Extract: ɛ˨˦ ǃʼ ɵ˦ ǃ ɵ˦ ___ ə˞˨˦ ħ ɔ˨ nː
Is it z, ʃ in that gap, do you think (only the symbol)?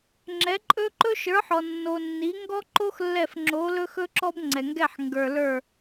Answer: ʃ